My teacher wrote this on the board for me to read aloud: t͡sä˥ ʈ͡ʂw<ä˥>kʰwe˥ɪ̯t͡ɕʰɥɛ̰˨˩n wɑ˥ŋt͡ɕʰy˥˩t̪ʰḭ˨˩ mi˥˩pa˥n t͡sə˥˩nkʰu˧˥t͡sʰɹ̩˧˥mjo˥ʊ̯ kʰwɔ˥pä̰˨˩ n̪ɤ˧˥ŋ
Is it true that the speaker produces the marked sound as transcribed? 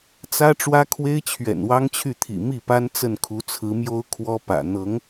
yes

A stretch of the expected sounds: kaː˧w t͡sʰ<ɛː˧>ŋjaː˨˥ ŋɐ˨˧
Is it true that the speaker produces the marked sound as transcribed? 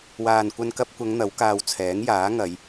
no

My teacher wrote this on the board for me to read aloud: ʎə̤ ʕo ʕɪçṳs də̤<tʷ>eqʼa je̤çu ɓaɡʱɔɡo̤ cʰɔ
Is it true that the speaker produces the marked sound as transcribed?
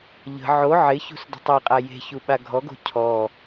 no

